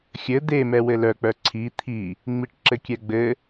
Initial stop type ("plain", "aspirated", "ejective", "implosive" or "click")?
plain